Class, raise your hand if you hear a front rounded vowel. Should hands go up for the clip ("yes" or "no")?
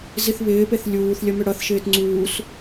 yes